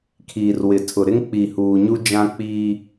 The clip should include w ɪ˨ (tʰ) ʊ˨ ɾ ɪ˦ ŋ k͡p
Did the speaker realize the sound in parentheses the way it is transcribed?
yes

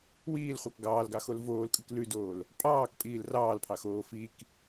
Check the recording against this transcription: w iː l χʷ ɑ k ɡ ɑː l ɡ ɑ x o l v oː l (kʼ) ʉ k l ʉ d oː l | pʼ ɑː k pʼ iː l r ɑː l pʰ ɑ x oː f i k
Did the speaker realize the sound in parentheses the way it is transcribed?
yes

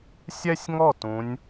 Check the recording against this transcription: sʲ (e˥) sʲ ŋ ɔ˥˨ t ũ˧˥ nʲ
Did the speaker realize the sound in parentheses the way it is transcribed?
no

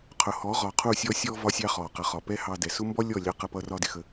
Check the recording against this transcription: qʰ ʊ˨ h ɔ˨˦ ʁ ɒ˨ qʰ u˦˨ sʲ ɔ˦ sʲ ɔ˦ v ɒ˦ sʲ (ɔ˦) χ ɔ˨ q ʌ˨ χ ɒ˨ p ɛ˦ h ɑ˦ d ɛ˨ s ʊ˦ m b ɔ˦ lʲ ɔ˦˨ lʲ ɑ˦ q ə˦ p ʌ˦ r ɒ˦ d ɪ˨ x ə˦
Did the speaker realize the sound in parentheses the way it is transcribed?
no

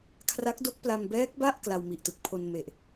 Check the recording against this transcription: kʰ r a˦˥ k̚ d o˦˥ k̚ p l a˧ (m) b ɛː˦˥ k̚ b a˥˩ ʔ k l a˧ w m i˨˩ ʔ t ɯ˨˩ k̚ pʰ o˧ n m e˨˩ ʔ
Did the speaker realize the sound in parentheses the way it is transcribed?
yes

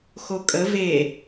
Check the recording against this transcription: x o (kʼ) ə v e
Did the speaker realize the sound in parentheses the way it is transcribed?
yes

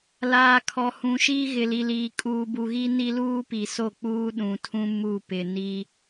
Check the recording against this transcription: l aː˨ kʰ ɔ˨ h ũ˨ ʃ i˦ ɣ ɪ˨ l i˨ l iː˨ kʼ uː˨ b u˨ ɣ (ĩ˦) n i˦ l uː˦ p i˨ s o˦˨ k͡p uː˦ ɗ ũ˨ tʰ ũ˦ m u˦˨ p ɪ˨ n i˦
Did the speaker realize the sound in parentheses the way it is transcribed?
no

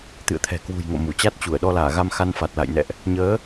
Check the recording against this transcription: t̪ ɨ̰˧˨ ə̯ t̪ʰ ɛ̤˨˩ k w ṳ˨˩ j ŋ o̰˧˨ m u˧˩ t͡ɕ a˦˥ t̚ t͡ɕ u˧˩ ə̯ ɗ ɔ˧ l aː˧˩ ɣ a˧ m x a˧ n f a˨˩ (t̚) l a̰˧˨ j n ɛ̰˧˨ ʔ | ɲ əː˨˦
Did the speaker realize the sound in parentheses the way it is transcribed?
yes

